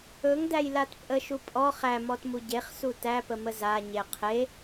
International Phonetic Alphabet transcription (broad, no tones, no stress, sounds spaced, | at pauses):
ɵ ŋ d æ j l a t pʼ ə ʃ u pʼ ɔ χ æ m ɔ t m u ɟ e χ s u t æ p ə m ə z a ɲ e qʰ e